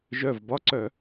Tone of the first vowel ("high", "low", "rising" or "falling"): low